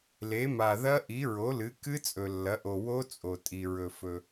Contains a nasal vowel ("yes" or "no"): no